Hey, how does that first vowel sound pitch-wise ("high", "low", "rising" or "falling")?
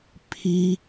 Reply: high